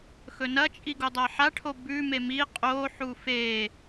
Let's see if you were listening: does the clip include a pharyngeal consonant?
yes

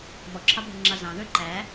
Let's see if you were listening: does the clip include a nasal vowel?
yes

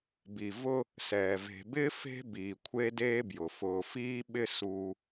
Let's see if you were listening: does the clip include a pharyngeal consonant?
no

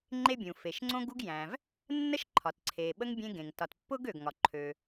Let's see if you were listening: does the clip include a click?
yes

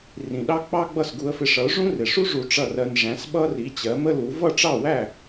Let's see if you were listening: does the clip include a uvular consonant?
no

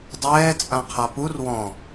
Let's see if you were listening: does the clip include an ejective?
yes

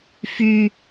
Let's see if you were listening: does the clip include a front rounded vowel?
yes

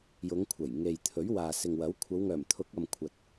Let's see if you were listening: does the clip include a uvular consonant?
no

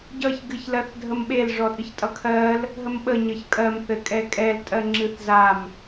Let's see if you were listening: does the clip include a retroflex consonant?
yes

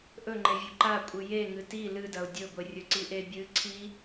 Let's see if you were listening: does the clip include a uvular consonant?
no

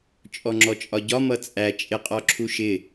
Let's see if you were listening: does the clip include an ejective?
yes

